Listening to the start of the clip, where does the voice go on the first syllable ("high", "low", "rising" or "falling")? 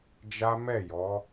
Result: high